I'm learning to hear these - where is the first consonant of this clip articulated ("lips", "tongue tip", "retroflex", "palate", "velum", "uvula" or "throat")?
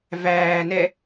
lips